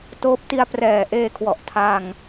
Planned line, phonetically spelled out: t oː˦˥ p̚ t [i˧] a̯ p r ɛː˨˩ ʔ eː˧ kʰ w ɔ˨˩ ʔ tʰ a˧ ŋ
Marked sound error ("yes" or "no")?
no